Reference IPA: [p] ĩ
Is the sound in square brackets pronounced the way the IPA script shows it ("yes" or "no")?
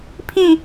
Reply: no